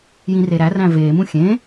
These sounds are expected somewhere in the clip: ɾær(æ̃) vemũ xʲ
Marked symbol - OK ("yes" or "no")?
yes